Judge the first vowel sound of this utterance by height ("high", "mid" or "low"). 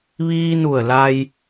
high